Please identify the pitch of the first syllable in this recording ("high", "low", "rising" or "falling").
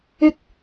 high